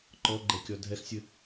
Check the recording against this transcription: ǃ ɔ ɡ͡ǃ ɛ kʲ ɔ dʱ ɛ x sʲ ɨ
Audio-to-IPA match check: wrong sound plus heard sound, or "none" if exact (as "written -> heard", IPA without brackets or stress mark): none